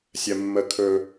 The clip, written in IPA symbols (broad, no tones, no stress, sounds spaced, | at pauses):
sʲ ɜ mː ə kʰ ɵ